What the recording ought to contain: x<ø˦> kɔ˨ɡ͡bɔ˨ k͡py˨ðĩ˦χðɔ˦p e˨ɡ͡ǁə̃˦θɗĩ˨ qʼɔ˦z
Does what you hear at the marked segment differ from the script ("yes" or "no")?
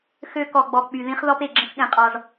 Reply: no